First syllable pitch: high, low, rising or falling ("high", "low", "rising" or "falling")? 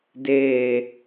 low